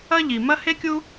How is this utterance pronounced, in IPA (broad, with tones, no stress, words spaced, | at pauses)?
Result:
ɐ˥ ʎi˩mɐ˥ he˥kʲu˥